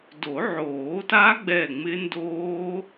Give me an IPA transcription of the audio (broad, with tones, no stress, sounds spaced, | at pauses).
d o˨˩˦ ʕ oː˨˩˦ t a˦˥ ɡ͡b ɛ˧˩ ŋ͡m ɪ˦˥ n d oː˦˥